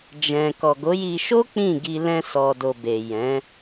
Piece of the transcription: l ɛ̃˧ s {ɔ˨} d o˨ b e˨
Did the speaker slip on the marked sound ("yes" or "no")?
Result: no